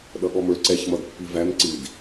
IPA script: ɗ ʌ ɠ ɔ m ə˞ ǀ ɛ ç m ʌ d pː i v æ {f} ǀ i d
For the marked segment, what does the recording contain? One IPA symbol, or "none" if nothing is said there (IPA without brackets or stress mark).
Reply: m